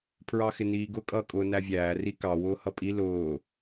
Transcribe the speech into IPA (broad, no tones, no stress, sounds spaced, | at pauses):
pʰ ɹ ɑ x ɪ n iː ɡ ʊ kʼ ʌː kʼ ʊː n æ vʲ æː r i k ɑ w ʊː h ʌ pʼ i l ʊː